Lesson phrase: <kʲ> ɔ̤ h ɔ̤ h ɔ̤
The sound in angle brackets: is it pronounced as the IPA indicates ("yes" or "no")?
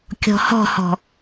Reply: yes